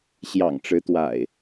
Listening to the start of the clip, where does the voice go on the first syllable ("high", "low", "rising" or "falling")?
low